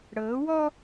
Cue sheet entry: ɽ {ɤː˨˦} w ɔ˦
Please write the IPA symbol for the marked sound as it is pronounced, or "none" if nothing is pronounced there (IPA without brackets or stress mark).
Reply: ɤː˨˦